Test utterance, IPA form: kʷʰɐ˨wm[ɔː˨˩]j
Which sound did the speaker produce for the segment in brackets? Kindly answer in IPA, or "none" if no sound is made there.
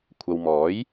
ɔː˨˥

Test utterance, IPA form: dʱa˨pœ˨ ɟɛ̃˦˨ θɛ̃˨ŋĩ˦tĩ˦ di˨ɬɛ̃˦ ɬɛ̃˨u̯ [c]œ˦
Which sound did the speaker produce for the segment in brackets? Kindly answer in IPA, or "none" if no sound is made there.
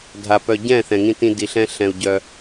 ɟ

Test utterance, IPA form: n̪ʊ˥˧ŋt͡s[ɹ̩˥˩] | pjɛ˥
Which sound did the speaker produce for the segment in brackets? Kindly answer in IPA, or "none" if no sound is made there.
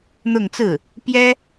ɹ̩˥˩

